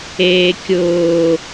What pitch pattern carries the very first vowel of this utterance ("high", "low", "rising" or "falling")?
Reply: low